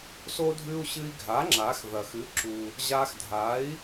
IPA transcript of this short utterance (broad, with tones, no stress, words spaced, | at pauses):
so˥dʱʉ˥u̯ ɕɨ˧i̯ɡʱa˩˥ ŋ͡ǁa˩˥xðɐ˩x ɨ˩˥ǁu˩ | ʑa˧xdʱa˩˥i̯